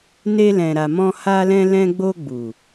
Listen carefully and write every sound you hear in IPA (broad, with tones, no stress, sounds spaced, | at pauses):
n e˧ l ɛ̃˨ ɾ a˨ m ɔ̃˧ h a˧ l ɛ̃˧ l ɛ̃˧ ɡ͡b o˧ ɡ͡b u˨